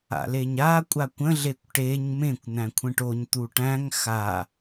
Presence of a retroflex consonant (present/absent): present